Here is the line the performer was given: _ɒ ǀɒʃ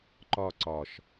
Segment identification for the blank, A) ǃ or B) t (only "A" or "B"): A